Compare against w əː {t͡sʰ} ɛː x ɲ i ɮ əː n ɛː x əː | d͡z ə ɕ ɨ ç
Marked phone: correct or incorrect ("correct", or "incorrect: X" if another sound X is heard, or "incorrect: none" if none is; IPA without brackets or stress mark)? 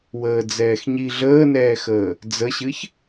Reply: incorrect: d͡z